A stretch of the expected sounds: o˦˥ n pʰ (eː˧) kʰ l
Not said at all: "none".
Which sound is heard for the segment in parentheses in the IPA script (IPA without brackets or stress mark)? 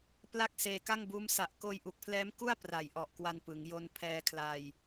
ɛː˧